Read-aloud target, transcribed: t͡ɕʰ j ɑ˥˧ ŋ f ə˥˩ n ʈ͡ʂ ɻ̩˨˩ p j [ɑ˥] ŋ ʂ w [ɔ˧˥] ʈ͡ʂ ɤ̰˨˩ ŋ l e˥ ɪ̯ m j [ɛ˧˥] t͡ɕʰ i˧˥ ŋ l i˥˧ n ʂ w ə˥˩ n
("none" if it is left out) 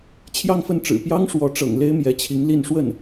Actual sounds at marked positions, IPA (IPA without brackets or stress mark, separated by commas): ɑ˥, ɔ˧˥, ɛ˧˥